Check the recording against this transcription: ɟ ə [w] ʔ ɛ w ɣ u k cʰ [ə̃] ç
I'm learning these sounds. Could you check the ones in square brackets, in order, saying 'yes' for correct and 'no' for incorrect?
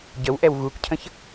yes, yes

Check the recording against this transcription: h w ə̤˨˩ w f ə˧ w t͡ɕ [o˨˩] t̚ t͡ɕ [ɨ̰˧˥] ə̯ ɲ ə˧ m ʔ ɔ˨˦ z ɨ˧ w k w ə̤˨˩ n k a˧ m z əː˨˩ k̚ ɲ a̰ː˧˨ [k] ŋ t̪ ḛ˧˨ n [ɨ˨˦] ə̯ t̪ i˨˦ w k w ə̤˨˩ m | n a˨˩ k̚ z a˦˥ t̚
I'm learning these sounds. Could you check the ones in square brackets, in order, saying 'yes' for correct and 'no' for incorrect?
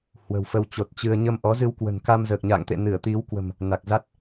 yes, no, no, no

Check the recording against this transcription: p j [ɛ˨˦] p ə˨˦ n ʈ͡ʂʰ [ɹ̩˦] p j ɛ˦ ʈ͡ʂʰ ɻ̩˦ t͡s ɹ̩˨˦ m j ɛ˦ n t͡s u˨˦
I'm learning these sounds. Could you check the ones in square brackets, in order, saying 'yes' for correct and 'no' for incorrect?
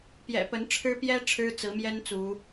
no, no

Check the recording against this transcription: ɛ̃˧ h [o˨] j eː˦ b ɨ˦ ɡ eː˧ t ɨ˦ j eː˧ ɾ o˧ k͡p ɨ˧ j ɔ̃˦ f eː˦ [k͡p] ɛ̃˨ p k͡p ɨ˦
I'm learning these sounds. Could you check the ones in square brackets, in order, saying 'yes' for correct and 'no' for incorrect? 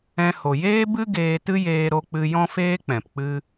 yes, yes

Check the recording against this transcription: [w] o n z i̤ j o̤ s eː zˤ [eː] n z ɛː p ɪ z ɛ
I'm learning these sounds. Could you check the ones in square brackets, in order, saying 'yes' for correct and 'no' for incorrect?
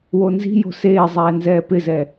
yes, no

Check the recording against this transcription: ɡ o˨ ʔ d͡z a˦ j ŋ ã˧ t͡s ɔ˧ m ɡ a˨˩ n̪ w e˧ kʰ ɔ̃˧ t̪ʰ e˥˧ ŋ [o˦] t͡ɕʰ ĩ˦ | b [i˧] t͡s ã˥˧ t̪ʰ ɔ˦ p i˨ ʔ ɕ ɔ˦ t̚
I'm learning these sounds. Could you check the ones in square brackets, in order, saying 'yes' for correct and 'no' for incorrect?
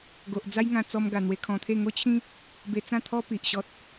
yes, no

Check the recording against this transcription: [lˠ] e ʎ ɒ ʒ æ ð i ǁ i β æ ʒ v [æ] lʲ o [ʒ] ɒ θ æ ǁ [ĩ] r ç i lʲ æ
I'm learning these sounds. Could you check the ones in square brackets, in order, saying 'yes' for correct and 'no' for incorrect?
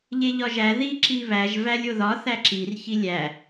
no, yes, no, no

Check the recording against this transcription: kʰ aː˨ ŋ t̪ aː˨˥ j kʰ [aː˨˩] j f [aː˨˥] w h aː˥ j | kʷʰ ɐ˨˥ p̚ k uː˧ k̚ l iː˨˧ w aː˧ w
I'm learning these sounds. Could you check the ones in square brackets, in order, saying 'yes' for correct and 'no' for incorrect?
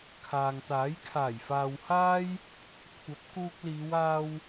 yes, no

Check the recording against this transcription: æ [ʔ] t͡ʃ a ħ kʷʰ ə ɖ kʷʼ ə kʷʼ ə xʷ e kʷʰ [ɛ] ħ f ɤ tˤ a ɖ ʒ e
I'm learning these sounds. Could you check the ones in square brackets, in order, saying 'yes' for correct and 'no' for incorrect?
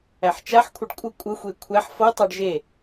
no, no

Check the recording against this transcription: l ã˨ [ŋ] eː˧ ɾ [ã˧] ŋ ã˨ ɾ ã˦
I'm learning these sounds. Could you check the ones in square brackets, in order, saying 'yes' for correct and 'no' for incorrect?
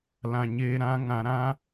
no, yes

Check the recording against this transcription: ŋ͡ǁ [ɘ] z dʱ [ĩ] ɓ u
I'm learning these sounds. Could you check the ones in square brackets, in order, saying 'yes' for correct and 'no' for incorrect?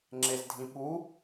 no, yes

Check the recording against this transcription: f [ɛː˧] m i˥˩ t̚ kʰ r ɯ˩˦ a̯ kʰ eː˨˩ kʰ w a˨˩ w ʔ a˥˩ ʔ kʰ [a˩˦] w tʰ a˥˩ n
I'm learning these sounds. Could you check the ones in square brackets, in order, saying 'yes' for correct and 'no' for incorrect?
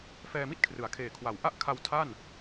yes, no

